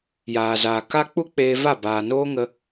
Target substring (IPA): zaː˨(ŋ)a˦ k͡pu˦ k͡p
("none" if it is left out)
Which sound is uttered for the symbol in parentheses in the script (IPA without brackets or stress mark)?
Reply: k